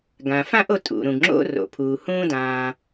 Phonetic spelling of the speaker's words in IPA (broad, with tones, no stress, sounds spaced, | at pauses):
ɡ ã˩ f ã˥ ʔ o˥ tʼ ṵ˩ ɾ ũ˩ ɡ ŋ͡ǁ o̰˥ r o̰˩ pʰ uː˩ h ũ˥ d ãː˩